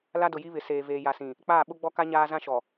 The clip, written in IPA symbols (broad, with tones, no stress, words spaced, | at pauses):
la˦dʊ˨ji˦βɪ˨ seː˨veː˨ ja˨sĩ˨ | k͡paː˦˨ɓʊ˦ɡ͡bɔ˦ka˦ ɲaː˦ zã˦ʃɔ˨